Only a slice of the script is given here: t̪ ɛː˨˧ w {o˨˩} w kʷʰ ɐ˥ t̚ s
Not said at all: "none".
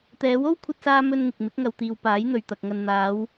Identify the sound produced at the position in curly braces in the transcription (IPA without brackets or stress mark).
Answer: o˥